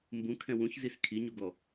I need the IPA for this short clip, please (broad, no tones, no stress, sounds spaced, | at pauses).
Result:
m b ũ kʰ ɛ̃ w ũ ç z i s kʰ i ɲ u ɡ ɔ